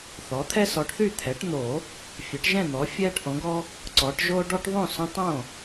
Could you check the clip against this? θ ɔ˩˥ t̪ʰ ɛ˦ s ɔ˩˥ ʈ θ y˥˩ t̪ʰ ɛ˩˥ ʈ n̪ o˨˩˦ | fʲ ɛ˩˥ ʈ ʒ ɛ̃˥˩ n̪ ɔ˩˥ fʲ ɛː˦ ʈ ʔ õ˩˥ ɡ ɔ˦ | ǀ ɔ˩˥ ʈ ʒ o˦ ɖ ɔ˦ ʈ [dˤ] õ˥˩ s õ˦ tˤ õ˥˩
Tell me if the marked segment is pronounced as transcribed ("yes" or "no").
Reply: no